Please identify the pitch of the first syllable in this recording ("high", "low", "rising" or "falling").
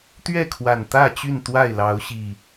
falling